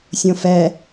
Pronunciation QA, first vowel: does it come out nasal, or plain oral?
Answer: nasal